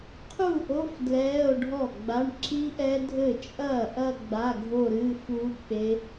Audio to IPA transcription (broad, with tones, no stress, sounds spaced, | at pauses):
qʰ u˥˩ ʔ o˧˥˧ f d l ɛː˧˥˧ o̯ ɖʱ ɔ˥˩ ɡ͡b a˧˥˧ ɳ ǁ i˦˥ ʔ ɛ˦˥ dʱ ɘ˥˩ t͡ʃʼ ɐː˥˩ ʔ ɐ˥˧ ɡ͡b a˧˥˧ ɡʱ o˥˧ ɾ ɨː˧˥˧ f u˦˥ k͡p e˦˥